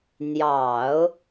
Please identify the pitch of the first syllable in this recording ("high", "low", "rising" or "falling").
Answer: low